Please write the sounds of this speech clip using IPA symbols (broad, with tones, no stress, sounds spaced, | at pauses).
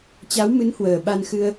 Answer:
t͡ɕ a˨˦ w m ɨ˨˦ n h w əː˨˩ ɓ a˧ n x ɨ˧ ə̯